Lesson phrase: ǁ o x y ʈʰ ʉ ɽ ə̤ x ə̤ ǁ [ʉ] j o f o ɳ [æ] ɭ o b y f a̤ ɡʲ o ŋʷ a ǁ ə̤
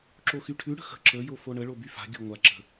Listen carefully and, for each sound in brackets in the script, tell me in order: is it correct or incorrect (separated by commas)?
incorrect, incorrect